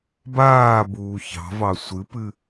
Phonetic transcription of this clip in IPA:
b aː b uː ç ɑ̤ v ɑ sʷ ɨ p ɨ

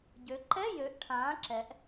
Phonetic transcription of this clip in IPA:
ɟ ø˩˧ ǃ ɛ˧˥˧ j ø˩˥ ʔ ʈʰ ãː˩˥ ǁ ɛ˩˧ ʔ

